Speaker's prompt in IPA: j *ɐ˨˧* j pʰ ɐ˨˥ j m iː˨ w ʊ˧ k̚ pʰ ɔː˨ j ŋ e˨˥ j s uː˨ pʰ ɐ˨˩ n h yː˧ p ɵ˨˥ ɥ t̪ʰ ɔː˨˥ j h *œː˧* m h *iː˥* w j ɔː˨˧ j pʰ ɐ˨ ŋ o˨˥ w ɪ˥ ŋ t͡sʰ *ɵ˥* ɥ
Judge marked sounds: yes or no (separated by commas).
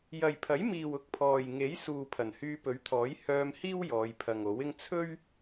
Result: no, yes, yes, yes